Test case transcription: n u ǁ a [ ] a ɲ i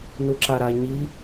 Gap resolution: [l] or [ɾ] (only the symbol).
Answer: ɾ